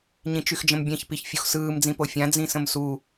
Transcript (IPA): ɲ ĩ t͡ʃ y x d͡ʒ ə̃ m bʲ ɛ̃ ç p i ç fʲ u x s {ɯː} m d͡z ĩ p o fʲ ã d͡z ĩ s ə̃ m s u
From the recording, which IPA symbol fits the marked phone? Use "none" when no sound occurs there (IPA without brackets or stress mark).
ɯː